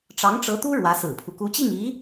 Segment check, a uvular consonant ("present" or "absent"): absent